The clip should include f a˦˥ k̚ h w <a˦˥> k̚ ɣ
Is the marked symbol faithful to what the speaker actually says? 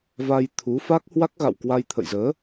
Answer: yes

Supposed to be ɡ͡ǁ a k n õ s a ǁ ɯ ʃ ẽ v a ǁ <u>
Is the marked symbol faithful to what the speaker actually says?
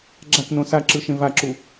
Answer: yes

